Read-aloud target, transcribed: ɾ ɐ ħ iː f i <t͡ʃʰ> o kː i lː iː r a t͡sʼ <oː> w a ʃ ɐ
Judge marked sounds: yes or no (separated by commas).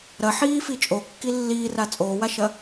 no, yes